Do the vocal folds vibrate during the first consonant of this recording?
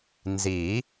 yes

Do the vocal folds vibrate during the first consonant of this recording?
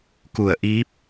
no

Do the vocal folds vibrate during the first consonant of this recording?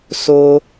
no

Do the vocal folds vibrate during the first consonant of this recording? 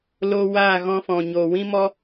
yes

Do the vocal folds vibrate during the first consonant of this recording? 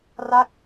yes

